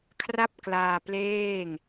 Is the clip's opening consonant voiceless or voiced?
voiceless